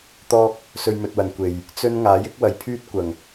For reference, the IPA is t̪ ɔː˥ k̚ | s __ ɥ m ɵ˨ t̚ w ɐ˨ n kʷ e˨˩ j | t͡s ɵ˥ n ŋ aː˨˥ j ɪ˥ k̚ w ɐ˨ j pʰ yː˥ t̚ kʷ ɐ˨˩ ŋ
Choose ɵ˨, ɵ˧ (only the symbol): ɵ˧